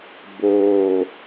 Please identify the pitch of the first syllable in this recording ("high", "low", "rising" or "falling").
low